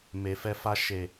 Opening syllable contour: low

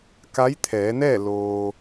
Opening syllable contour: rising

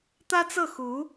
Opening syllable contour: high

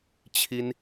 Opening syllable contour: high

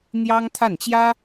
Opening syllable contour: high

